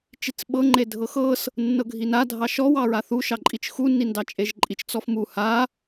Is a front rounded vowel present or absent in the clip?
absent